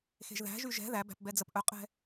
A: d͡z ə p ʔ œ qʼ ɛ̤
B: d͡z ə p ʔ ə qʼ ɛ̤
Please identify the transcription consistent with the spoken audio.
A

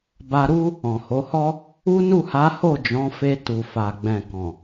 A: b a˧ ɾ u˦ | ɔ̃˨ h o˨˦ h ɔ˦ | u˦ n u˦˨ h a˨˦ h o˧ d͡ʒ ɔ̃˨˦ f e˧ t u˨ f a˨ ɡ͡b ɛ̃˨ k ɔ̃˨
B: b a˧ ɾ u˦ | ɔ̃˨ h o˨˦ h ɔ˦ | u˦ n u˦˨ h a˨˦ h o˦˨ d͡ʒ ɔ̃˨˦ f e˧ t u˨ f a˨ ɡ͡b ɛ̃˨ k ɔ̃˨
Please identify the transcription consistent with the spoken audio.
B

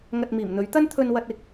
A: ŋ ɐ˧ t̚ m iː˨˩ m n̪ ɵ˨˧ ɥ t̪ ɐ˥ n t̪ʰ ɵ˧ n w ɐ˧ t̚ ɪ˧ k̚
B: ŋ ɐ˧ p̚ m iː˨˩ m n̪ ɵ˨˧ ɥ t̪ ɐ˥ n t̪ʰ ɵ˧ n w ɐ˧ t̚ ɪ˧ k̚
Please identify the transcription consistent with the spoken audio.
A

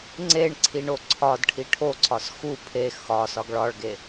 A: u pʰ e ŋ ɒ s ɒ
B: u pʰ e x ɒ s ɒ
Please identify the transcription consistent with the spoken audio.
B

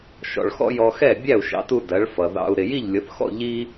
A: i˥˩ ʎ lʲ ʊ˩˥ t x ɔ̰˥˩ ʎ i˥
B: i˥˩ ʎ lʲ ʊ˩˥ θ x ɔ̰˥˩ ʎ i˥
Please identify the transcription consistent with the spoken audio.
B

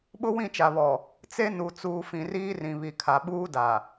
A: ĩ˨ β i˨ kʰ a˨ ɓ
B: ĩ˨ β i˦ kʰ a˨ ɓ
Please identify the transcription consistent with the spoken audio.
A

